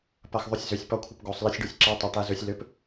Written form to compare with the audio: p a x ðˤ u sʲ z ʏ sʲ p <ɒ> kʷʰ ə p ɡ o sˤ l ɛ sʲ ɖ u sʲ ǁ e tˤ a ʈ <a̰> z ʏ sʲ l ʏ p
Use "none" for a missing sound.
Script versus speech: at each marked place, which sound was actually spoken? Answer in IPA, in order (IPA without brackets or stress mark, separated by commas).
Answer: ɒ, a